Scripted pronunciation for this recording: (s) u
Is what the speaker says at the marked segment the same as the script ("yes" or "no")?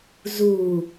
no